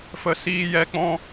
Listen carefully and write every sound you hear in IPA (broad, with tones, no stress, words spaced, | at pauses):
fə˦ siː˦ jɛ˦k͡pɔ̃˦